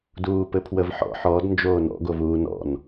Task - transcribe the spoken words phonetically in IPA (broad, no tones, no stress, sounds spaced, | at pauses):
d uː p ɘ pʰ w ə v ħ ɔ̰ ħ ɔ d n d͡ʒ oː n ɔ̰ ɡ o v uː n ɔ̰ n